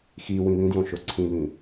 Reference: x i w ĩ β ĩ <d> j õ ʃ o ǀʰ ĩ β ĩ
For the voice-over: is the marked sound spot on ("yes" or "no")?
yes